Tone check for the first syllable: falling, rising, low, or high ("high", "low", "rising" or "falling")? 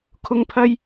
high